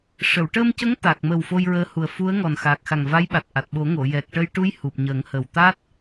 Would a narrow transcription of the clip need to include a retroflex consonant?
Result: yes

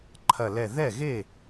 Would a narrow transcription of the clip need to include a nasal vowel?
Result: no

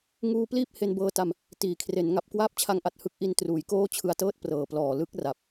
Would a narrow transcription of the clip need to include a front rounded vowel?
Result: no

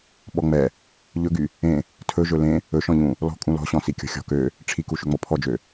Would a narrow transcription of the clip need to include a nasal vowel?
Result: yes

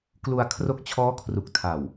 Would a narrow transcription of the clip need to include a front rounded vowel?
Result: no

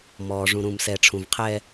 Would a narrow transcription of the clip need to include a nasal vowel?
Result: yes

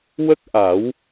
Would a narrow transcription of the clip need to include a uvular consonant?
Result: no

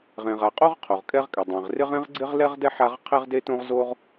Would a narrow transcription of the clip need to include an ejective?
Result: yes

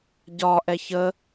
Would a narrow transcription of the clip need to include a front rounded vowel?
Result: no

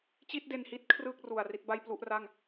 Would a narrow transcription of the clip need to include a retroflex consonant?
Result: no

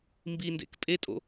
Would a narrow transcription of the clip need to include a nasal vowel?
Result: no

